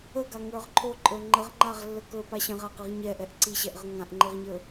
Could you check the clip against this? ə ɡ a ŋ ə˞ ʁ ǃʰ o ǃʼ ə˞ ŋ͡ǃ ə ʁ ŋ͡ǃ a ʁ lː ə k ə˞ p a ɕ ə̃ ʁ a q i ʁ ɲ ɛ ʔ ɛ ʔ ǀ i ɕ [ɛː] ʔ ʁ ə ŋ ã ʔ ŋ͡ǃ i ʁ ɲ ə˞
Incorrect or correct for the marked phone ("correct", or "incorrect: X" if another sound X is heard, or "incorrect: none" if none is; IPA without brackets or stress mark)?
incorrect: ɛ